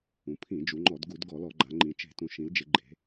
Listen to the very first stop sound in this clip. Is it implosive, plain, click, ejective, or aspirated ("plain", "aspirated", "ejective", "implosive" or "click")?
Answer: aspirated